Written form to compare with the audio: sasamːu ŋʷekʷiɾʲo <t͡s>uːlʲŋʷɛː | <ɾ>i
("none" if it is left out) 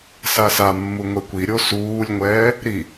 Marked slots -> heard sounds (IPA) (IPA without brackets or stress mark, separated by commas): s, ɾ